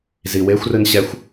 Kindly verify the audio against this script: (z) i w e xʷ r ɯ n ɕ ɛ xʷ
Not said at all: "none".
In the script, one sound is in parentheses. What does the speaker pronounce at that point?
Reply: z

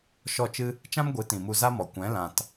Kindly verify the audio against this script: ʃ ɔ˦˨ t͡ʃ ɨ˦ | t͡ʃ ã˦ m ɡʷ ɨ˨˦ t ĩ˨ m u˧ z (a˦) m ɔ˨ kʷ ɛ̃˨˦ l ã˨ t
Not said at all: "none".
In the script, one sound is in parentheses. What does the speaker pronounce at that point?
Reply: a˦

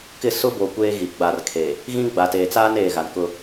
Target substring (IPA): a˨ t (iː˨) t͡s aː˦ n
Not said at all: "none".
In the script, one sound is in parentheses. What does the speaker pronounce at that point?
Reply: eː˨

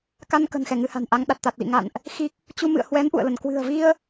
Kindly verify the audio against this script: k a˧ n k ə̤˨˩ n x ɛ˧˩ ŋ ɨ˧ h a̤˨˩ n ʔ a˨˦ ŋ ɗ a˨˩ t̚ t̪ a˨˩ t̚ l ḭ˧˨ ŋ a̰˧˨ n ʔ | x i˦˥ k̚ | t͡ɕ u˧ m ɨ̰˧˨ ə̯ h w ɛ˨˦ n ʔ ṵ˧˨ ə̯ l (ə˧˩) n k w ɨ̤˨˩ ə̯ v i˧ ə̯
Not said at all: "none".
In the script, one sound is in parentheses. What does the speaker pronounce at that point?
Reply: ə˧˩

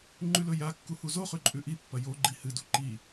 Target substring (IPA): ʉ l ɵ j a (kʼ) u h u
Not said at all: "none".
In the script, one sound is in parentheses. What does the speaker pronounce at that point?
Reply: kː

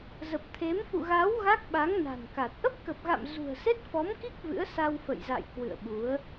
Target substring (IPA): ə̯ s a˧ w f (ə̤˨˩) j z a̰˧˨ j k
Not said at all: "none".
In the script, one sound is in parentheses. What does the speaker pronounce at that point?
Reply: ə̰˧˨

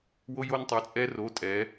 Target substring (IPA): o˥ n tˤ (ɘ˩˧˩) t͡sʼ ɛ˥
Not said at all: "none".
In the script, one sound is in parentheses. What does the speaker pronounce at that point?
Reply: ɛ˩˧˩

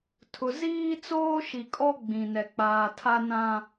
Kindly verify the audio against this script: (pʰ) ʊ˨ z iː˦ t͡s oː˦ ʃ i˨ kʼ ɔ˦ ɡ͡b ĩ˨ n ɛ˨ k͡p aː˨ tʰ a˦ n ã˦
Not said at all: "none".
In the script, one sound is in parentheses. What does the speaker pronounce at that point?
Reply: tʰ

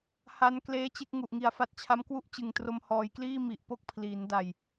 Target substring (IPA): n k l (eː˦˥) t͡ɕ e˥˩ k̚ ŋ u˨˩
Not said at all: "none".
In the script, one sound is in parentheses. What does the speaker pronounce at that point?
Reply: eː˦˥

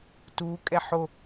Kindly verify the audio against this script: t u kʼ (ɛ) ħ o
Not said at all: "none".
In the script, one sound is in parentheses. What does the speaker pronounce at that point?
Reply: ɛ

